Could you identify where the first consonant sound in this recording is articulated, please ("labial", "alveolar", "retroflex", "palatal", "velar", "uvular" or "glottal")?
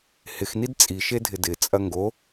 glottal